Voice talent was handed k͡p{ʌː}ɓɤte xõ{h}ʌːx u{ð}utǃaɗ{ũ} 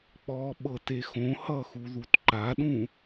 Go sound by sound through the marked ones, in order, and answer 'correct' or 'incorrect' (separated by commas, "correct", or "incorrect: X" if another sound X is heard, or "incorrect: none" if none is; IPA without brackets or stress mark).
incorrect: ɔː, correct, correct, correct